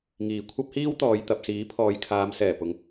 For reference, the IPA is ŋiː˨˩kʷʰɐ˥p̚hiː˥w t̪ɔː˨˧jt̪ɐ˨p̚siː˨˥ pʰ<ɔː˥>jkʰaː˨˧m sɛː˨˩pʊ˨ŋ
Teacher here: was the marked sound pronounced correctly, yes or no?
no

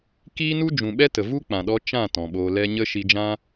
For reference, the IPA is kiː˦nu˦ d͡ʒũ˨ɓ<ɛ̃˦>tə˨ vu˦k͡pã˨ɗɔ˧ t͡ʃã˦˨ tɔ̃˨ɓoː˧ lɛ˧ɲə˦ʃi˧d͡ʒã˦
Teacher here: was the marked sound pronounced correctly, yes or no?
no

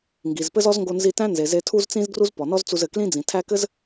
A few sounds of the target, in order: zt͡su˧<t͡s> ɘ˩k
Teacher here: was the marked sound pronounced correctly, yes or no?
no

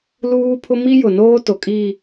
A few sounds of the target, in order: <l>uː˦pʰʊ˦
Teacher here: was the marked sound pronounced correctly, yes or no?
yes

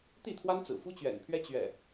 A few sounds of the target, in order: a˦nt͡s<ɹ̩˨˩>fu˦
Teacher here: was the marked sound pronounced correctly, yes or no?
yes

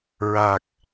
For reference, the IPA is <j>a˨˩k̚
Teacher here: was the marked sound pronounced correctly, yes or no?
no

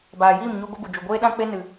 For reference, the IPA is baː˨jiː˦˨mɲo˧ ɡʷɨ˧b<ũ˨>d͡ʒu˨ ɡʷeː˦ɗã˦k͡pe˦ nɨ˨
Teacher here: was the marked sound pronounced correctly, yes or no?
no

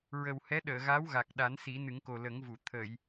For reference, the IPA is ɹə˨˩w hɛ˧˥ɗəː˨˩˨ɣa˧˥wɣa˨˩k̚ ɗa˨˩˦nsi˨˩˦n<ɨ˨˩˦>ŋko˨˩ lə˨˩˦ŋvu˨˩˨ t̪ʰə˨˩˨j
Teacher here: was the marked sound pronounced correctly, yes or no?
yes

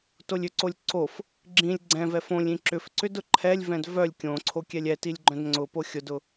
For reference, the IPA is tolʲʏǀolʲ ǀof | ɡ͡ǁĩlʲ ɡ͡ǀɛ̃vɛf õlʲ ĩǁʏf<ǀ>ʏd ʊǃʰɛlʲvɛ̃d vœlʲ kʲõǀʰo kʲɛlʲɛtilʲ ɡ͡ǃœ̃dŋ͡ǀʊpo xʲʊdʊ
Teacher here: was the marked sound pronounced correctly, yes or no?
yes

